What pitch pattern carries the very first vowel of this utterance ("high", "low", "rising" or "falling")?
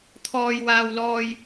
low